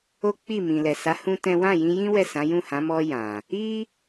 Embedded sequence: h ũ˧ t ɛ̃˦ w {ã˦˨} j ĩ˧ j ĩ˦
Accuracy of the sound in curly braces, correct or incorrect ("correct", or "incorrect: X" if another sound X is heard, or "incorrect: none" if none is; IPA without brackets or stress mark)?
correct